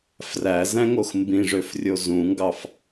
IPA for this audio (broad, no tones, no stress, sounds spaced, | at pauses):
f r æ z æ̃ ŋ o x m b ĩ ʐ ø f rʲ o z ũ ŋ ɡ ɑ f